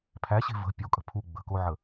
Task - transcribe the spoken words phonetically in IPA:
pʰ æ ɕ e̤ v ə̤ pʲ o kʼ ə̤ pʰ u ɡ͡b ə̤ k o ʕ ə

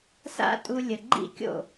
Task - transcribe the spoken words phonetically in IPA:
s a̰˦ tʼ u˧ lʲ ə˨ ɡ͡ǃ ḭ˦ kʲ o̰˦˨

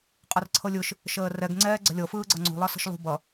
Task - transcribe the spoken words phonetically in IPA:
qʼ ʌ r ǀʰ ɤ lʲ ɯ ʃ | ʃ əː r ɛ ɡ ŋ͡ǀ ɛː ɡ͡ǀ ə̤ lʲ ɤ f ɯː ɡ͡ǀ ʌ ŋ͡ǀ ṳ lˠ ʌ s ə̤ ʃ lˠ ṳ b ʌ

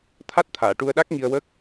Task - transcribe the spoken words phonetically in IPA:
t̪ʰ a˦˥ t̚ t̪ʰ aː˨˩˨ ʈ u˧ ə̯ ɗ a˦˥ k̚ ŋ i˧ ə̯ w ə˦˥ k̚

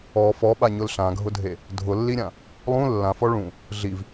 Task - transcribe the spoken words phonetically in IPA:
ɔ f ɔ ɓ a ɲ ʊ l ɬ ã ɡʱ ʊ dʱ e | dʱ ʊ lː i ɾʲ ã | lˠ ũ lː ã f ɔ ɭ ũ | ɮ i v

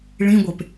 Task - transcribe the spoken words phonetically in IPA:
ɭ ĩ ɡʷ e p

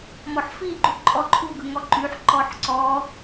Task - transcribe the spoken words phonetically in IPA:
m ɔ ħ f i ɡ͡ǃ u ǃʼ ɔ ǃʰ u ɡ ɯ ŋ ɔ ǃ y ħ ǃ ɔ ħ ǀ ɔ

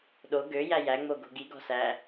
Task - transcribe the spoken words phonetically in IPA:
ɗ o ɡ ø j æ j æ ŋ͡m o ɡ o̤ ɡ i ɡ ɔ̤ s æ

